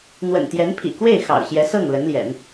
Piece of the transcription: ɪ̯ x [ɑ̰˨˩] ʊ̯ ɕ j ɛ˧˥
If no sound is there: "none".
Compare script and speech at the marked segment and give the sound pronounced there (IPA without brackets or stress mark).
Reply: ɑ̰˨˩